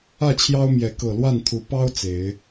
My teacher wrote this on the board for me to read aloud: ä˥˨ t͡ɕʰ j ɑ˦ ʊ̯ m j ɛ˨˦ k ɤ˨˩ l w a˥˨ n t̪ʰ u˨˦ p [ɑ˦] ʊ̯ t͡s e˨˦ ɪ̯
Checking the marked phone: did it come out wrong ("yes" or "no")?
no